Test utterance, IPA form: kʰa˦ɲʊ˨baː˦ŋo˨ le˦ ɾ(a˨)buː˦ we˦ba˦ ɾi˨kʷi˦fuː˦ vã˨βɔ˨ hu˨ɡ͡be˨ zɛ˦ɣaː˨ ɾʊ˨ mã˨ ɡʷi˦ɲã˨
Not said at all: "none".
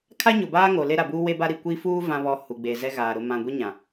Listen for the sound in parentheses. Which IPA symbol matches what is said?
a˨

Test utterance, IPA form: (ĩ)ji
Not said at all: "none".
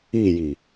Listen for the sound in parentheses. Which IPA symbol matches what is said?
i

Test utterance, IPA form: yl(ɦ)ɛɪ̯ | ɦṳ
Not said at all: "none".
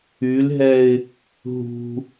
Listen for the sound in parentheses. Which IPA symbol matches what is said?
ɦ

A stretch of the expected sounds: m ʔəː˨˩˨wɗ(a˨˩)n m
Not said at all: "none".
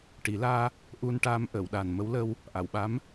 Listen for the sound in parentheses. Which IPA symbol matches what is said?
a˨˩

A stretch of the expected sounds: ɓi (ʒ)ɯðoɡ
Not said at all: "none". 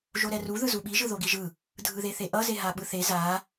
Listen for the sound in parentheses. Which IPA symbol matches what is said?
ʒ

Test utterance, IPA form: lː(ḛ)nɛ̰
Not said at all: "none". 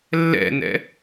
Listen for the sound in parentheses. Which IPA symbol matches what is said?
ɛ̰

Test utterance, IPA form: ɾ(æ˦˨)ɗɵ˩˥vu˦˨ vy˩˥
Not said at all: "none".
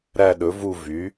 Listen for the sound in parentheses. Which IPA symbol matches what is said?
æ˦˨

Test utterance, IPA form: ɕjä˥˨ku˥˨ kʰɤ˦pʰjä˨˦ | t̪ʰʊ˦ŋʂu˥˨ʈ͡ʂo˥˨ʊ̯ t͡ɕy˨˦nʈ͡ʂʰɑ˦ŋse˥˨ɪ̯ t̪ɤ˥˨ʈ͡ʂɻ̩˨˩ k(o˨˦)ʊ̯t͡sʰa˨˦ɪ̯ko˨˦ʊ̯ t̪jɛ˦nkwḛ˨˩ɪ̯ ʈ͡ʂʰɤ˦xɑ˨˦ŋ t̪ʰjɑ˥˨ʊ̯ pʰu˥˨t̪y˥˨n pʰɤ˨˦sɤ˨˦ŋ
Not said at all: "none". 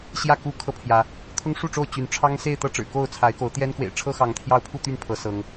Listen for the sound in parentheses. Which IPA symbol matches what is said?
o˥˨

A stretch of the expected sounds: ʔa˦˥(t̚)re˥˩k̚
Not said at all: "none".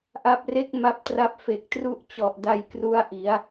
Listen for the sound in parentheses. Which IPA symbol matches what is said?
p̚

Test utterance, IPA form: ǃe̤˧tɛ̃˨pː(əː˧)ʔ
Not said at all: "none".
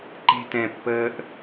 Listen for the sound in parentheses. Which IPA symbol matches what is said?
əː˧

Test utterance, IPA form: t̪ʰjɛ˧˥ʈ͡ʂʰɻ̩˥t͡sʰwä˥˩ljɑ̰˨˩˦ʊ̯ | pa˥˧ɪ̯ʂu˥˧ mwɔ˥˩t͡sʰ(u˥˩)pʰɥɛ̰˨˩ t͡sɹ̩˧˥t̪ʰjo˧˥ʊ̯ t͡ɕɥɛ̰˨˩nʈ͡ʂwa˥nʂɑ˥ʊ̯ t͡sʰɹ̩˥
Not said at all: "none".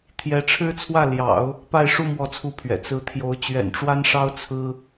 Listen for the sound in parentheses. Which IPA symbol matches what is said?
u˥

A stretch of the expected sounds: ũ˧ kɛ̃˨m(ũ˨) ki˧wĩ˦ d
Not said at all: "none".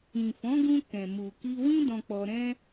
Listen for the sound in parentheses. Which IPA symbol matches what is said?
u˨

